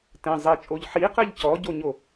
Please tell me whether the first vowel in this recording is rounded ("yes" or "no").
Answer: no